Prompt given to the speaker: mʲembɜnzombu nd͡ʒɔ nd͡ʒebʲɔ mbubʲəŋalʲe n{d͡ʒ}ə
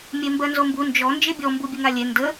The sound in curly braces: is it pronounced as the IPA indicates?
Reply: no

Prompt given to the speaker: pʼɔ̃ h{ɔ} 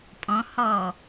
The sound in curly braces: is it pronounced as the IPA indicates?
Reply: yes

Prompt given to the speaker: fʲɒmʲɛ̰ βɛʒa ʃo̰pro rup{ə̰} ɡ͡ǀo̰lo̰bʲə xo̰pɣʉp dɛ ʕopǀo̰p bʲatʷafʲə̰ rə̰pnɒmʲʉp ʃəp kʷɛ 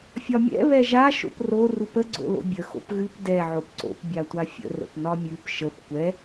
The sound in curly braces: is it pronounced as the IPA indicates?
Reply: no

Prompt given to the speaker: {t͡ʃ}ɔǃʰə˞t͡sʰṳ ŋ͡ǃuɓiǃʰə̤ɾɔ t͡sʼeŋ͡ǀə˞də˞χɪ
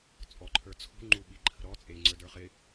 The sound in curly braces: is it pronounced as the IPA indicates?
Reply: no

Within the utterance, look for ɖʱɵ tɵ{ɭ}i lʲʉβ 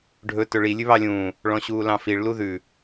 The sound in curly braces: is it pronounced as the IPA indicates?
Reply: yes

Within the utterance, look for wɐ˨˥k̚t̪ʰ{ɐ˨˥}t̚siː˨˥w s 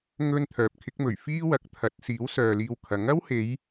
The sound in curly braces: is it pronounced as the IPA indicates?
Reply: yes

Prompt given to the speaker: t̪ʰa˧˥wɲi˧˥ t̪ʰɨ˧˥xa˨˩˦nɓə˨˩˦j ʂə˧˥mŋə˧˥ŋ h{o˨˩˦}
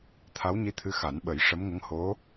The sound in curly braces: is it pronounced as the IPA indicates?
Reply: no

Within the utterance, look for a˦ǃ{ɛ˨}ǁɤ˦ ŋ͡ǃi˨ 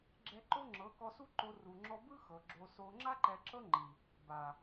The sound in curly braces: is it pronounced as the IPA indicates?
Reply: yes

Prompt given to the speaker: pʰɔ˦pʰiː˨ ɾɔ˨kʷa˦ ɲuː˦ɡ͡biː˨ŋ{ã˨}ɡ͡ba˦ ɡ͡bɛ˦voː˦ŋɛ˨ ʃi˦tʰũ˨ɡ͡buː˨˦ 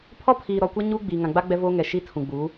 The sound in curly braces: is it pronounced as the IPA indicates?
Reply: yes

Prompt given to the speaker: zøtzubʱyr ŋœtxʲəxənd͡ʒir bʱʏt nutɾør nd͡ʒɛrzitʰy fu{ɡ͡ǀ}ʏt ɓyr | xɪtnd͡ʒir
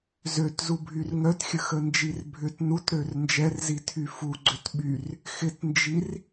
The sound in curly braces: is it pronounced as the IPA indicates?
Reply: yes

